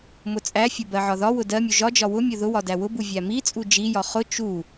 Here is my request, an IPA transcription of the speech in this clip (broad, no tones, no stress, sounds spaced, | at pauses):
m ʊ t͡sʼ æ fʲ ʊ b ɜ ʕ ɒ ð ɒ w ʊ d ɜ mʲ u ʒ ɒ d͡ʒ ɒ w ʊ mʲ ʊ ð ʊ w ɒ d æ w ʊ b u vʲ æ m i t͡sʼ u d͡ʒ i j ɒ χ ʊ t͡ʃ u